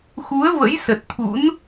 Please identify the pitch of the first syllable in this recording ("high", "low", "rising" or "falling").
rising